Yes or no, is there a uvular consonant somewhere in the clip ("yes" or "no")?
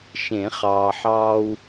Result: yes